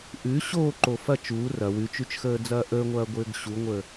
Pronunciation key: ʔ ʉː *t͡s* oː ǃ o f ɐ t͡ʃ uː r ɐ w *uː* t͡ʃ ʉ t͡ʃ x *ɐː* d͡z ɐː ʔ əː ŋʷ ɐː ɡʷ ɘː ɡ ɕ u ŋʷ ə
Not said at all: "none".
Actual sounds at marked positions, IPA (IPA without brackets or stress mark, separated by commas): ɕ, ʉː, əː